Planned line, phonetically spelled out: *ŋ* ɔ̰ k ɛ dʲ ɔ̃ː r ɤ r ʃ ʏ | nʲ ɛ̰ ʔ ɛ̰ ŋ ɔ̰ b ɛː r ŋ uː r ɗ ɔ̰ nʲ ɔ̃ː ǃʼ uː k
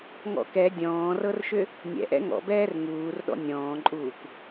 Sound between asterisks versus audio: correct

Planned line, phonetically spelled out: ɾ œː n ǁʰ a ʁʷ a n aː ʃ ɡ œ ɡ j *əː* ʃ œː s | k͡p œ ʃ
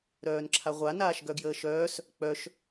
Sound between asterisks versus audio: correct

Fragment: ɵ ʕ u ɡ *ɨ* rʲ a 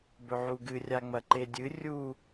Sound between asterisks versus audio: correct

